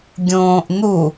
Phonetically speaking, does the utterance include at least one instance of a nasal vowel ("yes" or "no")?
yes